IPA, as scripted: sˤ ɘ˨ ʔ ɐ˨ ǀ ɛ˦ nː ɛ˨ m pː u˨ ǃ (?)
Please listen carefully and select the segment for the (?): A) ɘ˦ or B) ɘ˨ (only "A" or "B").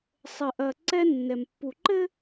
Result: A